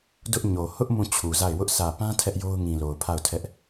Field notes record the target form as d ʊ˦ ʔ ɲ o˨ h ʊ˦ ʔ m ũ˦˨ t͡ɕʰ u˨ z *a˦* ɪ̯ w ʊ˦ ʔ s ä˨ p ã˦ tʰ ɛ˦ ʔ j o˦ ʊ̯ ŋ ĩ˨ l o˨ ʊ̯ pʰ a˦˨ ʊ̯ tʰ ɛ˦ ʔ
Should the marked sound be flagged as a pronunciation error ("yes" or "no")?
yes